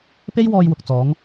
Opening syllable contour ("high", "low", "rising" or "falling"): high